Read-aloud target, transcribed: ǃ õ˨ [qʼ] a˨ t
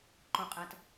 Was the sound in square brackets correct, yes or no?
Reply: yes